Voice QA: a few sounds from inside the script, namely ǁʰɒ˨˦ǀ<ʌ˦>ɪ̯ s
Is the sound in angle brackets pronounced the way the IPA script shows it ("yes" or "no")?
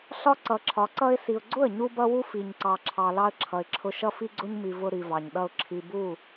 yes